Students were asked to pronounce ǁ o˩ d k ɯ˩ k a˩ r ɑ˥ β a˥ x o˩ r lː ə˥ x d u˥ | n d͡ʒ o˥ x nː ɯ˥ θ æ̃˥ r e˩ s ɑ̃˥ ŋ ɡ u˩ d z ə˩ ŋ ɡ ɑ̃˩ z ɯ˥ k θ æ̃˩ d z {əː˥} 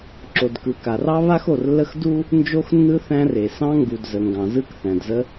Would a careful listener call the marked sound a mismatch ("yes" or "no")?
yes